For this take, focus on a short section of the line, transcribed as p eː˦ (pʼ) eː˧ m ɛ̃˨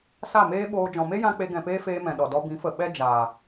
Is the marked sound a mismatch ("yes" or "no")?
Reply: yes